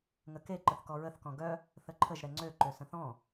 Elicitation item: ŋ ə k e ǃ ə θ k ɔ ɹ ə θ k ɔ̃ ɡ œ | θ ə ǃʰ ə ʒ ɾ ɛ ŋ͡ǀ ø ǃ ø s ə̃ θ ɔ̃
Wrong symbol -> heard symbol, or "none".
none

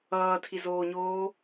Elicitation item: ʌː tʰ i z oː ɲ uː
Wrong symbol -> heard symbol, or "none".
uː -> oː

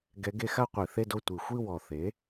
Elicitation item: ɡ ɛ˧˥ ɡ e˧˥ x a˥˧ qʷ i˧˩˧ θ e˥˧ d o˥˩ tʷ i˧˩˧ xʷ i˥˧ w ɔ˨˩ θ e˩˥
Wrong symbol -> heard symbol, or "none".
none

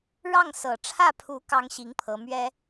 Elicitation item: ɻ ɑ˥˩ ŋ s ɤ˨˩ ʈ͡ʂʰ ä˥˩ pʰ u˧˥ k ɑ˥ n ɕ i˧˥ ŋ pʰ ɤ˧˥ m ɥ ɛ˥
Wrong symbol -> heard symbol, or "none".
n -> ŋ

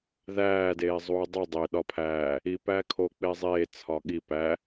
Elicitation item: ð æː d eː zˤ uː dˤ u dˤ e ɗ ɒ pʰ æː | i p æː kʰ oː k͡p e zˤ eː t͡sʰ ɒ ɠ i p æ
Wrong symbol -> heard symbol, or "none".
none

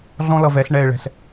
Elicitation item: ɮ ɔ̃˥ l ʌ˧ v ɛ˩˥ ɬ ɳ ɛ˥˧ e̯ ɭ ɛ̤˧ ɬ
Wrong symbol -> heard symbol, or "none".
none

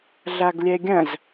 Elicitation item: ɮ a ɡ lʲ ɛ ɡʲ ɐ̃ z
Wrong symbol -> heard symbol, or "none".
none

